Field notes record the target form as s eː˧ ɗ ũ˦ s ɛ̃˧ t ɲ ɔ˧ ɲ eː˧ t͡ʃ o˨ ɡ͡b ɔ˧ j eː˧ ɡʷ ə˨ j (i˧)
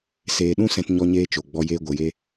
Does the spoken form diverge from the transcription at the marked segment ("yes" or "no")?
yes